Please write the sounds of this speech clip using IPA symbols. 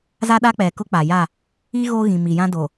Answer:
za˦ɗa˦ k͡pɛ˨kʊ˦ k͡pa˨ja˦˨ | i˦ɣo˦ɣĩ˨ mi˨jã˦do˨

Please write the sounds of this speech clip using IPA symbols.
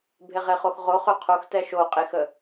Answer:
bʱeʁeχoxʁo χøqʰox tɛʃo qʼexə

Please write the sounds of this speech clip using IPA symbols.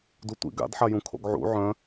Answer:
dutʷḭ ɡa̰dħajũ kʰo̰ɡʕṵ ʕœ̃

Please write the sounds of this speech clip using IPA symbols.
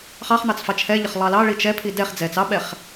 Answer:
χɑχn̪ɑt͡s fɑt͡ʃʰɛʎəχ lˠɑlɑɭi t͡ʃɛpʰi dɛχ d͡zɛt͡s ɑɓɛχ

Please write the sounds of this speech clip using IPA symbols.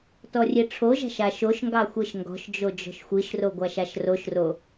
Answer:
tɔrʲeʈ͡ʂʰoʒa̤ʃ aʃoʃŋɡɑ xʷeʃŋɡɔ̤ʃd͡ʒo d͡ʒɔ̤ʃxʷiʃro ɡʷaʃaʃroʃro

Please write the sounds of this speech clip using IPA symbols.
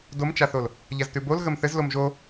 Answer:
domt͡ʃaθol | ʎaztʉbol ɣəmθɘzlom ʒo

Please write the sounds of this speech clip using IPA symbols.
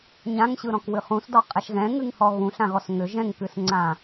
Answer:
ɲãŋɕɯɾɔ̃kwɨ χũsdɔqʼɛʃ ɣɛ̃ŋɨŋhɔ ɣũɬãɣɔs ŋʏ ʒɛ̃ŋkɨsŋ͡ǀã

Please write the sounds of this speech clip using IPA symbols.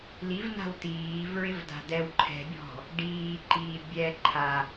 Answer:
livna̤w tiːvɹɪvda̤ dɛw ǃʰɛ̤bʲɔ̤ | ɖiːǃiː bʲɛ ǃʰa

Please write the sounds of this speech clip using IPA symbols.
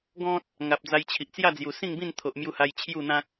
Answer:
ɡɔ̃˦t̚ | ŋa˨p̚d͡za˧jt͡ɕʰi˨ʔ t͡sja˥˧d͡zju˨˩sĩ˥˧ŋbĩ˥˧n t̪ʰo˨ʔmju˧ha˧j t͡ɕʰju˥˧n̪ã˦k̚

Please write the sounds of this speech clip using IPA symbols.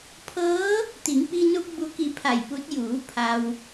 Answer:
pʰɤː˧˥ | t̪i˩˧ŋpi˧nu˧p̚ bu˩ki˩˧ pʰa˧˩jpu˧˥t̚ juː˩˧ pʰa˩w

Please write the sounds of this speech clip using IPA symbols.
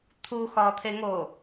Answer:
t̪ʰuxɒːt̪ʰeŋoː

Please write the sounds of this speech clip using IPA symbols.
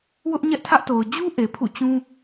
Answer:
wʊ˦ʔɲɛ˦ʔtʰä˦ʔto˨ʊ̯ d͡ʑu˦ ʔe˨pʰṵ˦˨t͡ɕũ˦

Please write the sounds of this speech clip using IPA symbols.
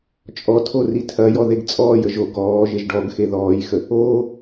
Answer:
t͡ʃʼɔtʰo ritʰɐjɔ ðeɡt͡sʼɔːjə ʒo ɡɔː ʒeʒɖɔɡxe ðɔːjxə | oː

